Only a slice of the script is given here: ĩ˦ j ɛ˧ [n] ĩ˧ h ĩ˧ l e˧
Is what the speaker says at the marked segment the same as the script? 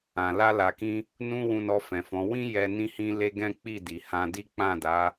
yes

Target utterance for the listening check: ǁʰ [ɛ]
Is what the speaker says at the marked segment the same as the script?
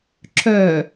no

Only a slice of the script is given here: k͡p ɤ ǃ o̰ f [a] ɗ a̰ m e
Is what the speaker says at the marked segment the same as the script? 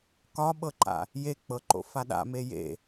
yes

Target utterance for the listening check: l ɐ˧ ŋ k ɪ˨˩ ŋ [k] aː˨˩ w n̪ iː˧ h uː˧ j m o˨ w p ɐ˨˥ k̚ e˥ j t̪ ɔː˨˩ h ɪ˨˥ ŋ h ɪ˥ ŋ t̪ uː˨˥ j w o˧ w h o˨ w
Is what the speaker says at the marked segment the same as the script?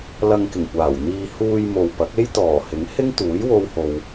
no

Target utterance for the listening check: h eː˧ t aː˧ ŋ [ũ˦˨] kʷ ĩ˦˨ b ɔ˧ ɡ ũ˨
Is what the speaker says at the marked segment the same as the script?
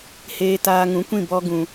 no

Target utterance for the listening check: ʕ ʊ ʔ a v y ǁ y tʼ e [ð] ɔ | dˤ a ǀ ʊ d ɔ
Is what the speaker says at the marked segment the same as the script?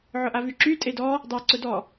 no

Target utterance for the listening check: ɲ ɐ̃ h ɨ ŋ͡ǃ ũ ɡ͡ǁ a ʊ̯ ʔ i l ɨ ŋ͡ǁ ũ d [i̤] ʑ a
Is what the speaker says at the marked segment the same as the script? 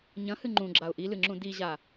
no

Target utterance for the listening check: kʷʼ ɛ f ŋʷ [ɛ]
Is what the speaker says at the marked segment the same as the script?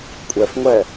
yes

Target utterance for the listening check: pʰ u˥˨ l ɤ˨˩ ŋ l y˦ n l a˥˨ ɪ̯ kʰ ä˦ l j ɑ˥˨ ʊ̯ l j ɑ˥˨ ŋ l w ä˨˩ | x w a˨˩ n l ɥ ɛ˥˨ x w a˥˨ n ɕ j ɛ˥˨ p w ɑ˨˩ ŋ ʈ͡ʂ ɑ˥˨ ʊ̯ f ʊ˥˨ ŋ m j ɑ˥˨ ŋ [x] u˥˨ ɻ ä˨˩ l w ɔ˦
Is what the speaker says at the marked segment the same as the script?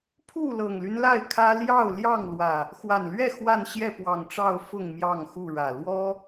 yes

